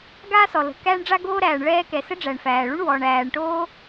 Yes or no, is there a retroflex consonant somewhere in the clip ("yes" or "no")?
yes